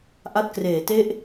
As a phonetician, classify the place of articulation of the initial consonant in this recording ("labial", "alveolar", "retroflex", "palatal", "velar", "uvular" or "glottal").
glottal